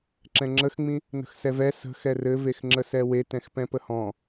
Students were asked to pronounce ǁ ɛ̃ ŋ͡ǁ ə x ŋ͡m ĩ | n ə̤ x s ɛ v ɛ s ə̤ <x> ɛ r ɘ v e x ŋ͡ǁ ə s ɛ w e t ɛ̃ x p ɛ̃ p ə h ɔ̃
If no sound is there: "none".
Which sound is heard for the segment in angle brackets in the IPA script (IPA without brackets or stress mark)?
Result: x